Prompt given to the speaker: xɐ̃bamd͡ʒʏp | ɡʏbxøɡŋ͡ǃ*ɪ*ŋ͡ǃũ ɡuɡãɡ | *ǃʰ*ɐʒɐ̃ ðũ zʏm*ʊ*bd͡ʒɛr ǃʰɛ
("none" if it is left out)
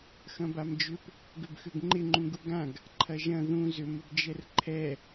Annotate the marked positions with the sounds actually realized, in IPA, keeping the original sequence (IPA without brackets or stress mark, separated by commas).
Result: ɪ, ǃʰ, ʊ